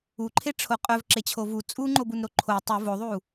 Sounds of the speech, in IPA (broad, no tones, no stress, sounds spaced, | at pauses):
u ǃʰ e ʈ͡ʂʰ o qʼ œ v ǁ e t͡ɕʰ o v u t͡sʼ u ŋ͡ǃ o b u n ɾ o ǃʰ o tˤ u v o ðˤ u